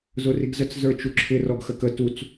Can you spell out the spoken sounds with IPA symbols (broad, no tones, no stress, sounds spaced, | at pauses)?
z ʊ r i ɡ z ə t͡s z ə˞ t͡ʃ u ǁʰ ɪ r ɔ ɡ x ə k ə t u t͡s